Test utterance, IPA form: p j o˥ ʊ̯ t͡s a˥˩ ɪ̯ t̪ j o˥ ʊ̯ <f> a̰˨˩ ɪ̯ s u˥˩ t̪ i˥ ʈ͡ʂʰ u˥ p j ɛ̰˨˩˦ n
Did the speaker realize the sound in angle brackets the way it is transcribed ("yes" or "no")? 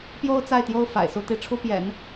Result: yes